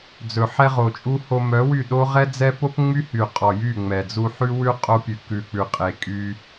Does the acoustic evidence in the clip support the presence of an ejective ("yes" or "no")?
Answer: yes